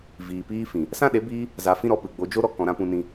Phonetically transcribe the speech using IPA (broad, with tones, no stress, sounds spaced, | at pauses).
v iː˨ p iː˧ f ĩ˨ | s ã˦ ɗ e˨˦ b iː˧ | z a˧ f ĩ˦ ɾ ɔ˨˦ p ɨ˨ ɡ͡b o˧ d͡ʒ o˦ ɾ ɔ˧ k ɔ̃˨ ɾ ã˦ p ũ˧ n ĩ˧